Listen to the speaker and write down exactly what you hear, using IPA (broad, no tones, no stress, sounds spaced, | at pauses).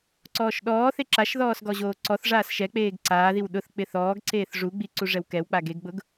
ǀ ɔː ʃ ɗ ɔː θ e ǁ a ʃ ð ɔː s ɡ ɔ ʑ oː ǀ ɔ θ ʐ aː s ʃ ɛ k͡p eː ɡ ǀ aː ð i w ɗ ʊ θ k͡p ɪ θ ɔː ɡ ǀ eː θ ʐ u ɡ͡b i ǀ u ʐ ɛ w k ɛ w k͡p a ɡ e ɡ ɡ͡b ʊ ɡ